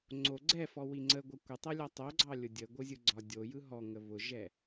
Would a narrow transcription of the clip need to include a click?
yes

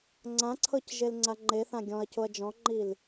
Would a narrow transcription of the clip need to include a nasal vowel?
yes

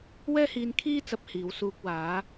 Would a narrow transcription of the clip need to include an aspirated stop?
yes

